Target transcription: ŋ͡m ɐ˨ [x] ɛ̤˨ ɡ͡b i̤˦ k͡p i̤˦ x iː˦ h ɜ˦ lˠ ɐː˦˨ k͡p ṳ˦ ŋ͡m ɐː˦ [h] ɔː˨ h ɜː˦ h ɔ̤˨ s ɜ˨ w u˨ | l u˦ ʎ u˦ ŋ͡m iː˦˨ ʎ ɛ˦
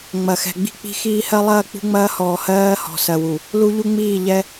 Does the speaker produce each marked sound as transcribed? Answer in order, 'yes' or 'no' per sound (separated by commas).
yes, yes